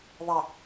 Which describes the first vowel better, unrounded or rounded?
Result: unrounded